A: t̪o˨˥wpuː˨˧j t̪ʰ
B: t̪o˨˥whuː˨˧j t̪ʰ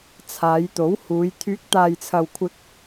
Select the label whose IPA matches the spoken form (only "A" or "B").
B